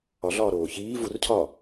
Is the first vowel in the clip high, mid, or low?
low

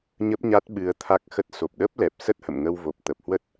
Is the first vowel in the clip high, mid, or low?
mid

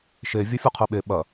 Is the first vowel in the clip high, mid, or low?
mid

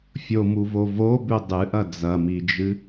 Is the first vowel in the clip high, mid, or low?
mid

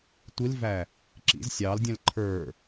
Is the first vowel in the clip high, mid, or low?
high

